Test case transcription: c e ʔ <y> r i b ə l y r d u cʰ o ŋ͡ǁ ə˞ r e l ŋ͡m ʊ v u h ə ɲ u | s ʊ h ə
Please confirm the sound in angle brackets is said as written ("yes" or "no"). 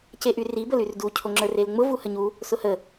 yes